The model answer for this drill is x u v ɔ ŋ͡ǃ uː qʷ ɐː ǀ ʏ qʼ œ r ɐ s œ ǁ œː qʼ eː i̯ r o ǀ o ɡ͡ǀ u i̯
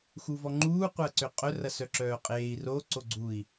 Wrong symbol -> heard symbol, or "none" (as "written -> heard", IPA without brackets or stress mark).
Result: none